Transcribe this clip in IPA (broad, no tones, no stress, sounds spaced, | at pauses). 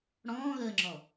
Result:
ɽ ɔ̃ː ɣ əː ŋ͡ǁ ɔ